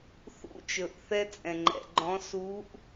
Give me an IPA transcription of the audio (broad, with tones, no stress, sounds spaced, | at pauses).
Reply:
θ ṵ˧ t͡ʃ ɵ˨ ʔ θ ɛ˧ t͡sʼ ɛ̃˨ ŋ͡ǃ ɛ̰˨ ɡ͡ǃ ɔ̃˨˦ s u˨˦ ʔ